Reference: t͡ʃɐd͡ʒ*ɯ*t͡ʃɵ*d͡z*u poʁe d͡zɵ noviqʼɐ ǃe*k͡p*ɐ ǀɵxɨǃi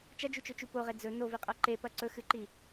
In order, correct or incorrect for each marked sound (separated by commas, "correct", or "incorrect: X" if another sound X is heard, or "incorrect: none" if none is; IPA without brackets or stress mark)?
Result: incorrect: u, incorrect: t͡ʃ, incorrect: p